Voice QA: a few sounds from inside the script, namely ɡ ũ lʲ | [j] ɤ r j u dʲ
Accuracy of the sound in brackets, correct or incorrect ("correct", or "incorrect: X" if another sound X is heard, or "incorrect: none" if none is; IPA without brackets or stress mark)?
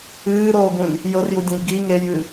correct